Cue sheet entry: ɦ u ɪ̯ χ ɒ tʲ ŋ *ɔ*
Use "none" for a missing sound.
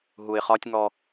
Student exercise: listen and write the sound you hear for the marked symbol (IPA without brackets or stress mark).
ɔ